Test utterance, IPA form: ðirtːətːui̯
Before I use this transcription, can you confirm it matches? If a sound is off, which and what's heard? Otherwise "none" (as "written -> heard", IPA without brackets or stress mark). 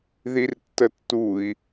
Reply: none